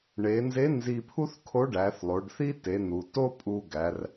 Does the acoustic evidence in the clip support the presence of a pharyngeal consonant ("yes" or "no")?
no